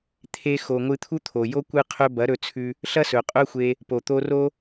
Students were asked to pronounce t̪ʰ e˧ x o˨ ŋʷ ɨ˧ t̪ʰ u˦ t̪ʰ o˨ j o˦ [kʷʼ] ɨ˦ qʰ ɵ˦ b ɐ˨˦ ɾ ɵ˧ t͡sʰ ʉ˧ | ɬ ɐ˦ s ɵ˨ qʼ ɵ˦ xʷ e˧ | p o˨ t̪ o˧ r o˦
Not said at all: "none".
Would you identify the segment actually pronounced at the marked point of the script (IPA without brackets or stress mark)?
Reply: kʷ